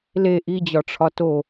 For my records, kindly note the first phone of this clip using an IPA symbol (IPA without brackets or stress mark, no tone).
l